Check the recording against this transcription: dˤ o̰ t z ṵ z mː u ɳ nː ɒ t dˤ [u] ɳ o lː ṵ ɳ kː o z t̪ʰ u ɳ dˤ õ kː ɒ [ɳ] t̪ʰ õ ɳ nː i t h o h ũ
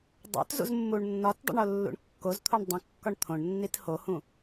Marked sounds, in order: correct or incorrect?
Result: incorrect: ṵ, correct

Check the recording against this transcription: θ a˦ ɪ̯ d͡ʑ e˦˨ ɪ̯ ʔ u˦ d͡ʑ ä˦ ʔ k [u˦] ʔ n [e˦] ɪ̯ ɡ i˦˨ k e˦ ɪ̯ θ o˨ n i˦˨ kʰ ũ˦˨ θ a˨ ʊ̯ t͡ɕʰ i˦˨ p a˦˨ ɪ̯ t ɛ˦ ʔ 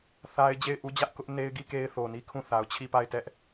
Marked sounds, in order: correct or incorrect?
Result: incorrect: ʊ˦, correct

